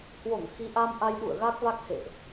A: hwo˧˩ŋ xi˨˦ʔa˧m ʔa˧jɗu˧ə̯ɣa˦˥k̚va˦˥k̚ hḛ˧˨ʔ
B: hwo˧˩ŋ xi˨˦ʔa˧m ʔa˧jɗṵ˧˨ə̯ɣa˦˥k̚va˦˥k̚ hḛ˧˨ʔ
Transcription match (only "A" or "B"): B